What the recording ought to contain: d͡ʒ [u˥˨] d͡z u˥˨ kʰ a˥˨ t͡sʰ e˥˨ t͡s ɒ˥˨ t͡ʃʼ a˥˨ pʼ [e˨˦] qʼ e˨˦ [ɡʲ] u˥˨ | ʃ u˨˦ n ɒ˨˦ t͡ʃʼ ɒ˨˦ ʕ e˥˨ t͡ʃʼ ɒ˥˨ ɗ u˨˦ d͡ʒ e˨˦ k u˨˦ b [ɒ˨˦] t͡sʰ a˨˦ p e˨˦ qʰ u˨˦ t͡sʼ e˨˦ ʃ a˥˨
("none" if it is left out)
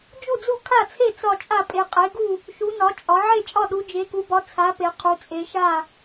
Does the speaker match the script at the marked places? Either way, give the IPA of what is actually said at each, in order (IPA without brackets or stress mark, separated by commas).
u˥˨, e˨˦, ɡ, ɒ˨˦